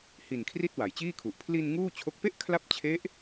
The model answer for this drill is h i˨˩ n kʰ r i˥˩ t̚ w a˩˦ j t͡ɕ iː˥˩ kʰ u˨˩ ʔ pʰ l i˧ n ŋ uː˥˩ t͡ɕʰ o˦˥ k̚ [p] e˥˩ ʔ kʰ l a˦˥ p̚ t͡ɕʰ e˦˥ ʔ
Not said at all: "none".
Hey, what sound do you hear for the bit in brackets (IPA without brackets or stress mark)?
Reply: p